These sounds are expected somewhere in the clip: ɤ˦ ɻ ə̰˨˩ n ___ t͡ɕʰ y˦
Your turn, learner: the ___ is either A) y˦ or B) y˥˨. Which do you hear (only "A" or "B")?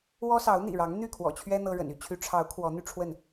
A